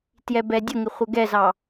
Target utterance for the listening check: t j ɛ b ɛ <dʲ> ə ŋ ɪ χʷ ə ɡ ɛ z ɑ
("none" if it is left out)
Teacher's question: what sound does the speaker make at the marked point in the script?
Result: dʲ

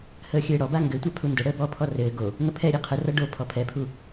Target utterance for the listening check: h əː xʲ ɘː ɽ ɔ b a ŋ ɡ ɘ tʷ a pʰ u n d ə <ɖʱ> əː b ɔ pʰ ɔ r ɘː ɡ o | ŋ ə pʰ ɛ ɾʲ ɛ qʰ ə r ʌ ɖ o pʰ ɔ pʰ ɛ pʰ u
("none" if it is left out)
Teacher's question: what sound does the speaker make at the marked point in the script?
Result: ɽ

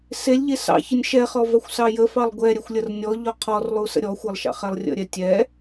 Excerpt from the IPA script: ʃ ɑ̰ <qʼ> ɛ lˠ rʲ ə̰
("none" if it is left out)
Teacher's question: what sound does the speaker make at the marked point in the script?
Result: χ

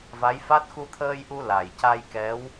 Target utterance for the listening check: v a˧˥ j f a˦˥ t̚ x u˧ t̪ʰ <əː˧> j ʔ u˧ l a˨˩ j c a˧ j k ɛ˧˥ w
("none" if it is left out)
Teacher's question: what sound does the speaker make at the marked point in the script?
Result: əː˧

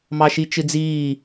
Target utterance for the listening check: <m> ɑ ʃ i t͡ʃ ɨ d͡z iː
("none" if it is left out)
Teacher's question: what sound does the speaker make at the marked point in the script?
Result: m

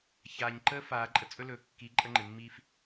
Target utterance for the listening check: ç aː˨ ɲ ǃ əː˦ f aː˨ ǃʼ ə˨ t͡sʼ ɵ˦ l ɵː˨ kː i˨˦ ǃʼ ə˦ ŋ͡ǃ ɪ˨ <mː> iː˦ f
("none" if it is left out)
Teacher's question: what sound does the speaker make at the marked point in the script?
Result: mː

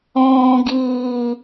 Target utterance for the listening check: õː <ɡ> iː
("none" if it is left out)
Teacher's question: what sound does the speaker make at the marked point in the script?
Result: ɡ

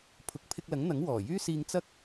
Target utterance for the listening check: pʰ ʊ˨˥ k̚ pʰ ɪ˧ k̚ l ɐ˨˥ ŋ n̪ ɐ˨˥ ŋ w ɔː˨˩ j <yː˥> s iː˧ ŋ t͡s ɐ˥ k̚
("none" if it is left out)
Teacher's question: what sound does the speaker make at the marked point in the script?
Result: yː˥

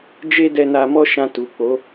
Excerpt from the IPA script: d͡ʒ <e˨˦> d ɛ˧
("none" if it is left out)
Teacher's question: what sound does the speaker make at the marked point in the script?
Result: e˦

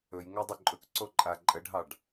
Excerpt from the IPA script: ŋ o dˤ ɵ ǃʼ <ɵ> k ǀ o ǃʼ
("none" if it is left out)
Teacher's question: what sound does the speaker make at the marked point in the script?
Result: ɵ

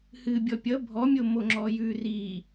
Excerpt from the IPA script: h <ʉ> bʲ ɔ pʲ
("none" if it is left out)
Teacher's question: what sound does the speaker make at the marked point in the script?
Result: ɨ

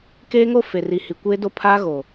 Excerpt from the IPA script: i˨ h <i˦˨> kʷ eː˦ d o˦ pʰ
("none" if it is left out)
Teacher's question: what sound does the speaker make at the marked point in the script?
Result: i˨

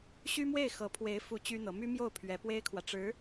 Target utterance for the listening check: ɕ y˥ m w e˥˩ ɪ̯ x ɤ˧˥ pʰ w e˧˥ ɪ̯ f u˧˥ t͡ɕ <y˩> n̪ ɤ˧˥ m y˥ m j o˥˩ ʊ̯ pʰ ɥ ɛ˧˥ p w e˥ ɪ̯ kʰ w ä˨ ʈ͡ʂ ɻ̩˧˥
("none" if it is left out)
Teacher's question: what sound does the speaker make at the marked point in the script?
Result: y˥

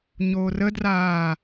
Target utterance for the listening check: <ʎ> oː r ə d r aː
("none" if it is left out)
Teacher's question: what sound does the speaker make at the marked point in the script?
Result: ɲ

